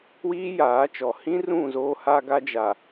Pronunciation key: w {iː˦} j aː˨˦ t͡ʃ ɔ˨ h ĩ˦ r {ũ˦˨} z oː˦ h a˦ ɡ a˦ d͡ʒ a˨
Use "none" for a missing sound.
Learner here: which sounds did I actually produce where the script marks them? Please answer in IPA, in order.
iː˦, ũ˦˨

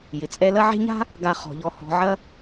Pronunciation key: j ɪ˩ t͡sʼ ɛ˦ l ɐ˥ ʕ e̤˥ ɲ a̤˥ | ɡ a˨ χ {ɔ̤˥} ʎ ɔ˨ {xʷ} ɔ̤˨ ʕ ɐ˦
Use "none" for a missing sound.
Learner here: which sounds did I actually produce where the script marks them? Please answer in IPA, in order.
ɔ̤˩, h

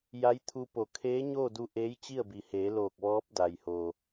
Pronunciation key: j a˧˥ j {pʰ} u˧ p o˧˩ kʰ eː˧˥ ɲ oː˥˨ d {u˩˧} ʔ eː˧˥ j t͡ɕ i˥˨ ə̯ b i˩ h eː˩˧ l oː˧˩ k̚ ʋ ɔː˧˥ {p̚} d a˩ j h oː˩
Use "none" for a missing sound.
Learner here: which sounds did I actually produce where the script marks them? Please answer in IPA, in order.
t̪ʰ, u˧, p̚

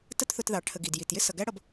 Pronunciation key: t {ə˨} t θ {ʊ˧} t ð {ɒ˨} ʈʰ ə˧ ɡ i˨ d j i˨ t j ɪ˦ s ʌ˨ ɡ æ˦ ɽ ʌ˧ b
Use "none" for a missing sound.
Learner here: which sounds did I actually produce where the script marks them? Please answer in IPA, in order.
ə˦, ʊ˧, ɑ˨

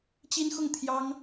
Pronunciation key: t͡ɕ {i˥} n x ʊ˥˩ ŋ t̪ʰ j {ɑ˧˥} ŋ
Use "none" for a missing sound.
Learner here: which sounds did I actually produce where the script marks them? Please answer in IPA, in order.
i˥, ɑ˥

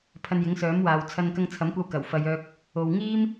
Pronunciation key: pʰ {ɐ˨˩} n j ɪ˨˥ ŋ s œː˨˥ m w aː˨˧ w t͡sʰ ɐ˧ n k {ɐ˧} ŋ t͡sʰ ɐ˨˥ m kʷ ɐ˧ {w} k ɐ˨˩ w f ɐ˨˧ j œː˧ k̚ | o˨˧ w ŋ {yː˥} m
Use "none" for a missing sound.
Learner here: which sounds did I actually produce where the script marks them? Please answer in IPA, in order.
ɐ˧, ɐ˧, w, iː˥

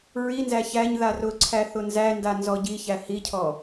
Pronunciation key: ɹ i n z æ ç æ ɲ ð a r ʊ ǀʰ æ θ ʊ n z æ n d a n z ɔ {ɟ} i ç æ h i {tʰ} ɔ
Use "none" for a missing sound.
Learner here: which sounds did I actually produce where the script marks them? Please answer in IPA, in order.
ɟ, cʰ

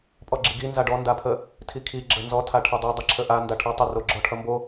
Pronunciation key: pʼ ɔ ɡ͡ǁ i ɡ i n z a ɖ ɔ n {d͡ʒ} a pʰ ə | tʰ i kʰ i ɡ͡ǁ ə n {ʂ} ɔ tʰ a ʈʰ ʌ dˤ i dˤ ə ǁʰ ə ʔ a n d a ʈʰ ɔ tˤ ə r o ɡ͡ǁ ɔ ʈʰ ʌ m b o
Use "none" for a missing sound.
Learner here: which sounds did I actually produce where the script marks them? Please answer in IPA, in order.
d, z

